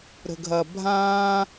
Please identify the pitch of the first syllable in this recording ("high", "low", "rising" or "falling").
low